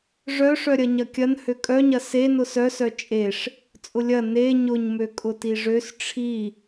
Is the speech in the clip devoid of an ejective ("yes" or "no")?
no